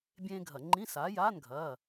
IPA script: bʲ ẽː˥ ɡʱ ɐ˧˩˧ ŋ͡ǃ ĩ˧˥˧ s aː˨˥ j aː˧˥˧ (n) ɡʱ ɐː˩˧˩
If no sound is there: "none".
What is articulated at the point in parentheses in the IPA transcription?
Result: n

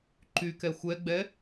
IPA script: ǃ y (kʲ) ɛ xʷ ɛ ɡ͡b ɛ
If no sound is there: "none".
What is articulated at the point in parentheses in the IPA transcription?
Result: k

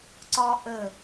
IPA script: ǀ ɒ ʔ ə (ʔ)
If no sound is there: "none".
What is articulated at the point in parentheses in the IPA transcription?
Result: none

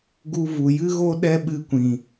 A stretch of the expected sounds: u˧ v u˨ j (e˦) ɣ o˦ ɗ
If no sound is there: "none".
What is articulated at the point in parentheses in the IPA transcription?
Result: ɨ˦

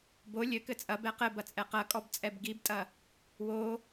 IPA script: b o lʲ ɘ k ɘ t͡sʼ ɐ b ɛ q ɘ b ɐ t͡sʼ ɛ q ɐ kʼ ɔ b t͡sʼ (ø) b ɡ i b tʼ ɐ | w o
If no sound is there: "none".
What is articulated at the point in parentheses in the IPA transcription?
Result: ɛ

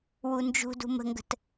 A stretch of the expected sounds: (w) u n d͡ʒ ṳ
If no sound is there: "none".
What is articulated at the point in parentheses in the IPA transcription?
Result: w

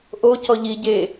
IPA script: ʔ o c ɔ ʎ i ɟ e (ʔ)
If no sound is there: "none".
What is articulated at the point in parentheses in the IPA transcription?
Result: none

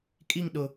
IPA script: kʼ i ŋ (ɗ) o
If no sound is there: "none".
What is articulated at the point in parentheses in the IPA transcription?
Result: ɗ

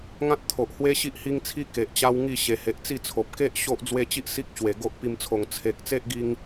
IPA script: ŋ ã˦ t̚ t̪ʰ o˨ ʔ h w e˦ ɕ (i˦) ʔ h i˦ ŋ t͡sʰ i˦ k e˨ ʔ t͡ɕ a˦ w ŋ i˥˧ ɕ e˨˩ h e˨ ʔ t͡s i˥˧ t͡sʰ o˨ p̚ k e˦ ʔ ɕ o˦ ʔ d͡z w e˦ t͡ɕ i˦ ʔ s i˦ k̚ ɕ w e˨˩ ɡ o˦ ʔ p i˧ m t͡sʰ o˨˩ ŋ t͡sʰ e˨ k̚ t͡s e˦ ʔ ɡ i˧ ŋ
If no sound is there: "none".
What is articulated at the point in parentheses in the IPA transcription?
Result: i˦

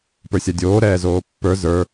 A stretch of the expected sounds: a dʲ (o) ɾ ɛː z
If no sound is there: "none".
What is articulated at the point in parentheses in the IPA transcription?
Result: oː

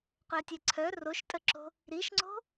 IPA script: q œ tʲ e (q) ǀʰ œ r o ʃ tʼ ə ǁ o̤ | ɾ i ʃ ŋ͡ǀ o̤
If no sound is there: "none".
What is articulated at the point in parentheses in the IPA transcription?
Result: none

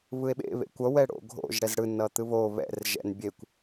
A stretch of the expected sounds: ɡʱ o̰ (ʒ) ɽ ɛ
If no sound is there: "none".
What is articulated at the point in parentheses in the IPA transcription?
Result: ʒ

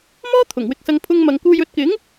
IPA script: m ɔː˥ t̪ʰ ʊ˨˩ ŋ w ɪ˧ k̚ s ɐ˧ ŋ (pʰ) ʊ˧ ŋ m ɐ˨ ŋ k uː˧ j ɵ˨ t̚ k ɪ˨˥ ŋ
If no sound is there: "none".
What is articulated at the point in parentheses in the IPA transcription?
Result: pʰ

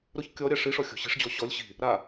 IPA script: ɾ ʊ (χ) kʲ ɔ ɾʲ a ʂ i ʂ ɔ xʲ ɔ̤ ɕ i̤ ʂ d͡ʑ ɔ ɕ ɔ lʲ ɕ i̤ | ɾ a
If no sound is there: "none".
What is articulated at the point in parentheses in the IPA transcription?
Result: ç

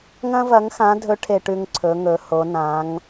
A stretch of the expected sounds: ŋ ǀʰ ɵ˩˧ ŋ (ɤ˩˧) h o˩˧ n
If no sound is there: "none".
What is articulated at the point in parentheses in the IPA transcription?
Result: ɵ˩˧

